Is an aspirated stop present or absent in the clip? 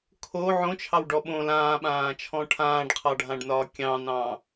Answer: present